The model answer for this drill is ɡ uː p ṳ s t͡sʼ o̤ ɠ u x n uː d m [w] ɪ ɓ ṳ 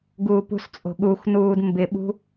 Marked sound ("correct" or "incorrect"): incorrect